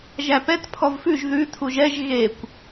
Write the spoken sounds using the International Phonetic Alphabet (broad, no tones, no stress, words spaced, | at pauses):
ʒæpɛt pʰɔvfʉʒ ðʉ tʰuʒɛʒ ɣekʷ